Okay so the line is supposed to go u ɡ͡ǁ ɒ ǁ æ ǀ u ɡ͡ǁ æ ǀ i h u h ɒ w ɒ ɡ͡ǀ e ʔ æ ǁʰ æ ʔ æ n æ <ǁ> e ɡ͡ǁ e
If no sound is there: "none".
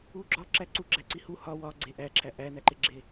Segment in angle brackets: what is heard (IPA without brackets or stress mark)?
ǃ